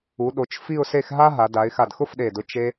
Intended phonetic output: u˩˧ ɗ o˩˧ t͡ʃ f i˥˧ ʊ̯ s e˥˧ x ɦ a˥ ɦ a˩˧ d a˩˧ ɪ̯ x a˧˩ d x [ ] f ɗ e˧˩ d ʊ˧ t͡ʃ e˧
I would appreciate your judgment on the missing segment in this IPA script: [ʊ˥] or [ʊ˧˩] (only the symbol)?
ʊ˥